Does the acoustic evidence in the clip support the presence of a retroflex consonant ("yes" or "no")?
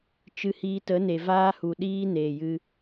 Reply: no